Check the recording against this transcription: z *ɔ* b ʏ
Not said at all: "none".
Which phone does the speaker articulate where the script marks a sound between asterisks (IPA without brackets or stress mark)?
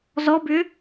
ɔ